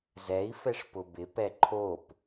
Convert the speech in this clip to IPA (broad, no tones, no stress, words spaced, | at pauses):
zɛi̯fɛʂ pʊbɪpɛ ǃʰop